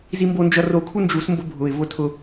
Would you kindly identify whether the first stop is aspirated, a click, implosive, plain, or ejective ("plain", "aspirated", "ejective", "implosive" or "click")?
plain